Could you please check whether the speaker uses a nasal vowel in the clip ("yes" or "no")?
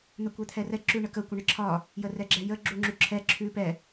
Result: no